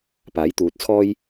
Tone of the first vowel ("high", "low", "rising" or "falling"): rising